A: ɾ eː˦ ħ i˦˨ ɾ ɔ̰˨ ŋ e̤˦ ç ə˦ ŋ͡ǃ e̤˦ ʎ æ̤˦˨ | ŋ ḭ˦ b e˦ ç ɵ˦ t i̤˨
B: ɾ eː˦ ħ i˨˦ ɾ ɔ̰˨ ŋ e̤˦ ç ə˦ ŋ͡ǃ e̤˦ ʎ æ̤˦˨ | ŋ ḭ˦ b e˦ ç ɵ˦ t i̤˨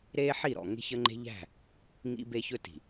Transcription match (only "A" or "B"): A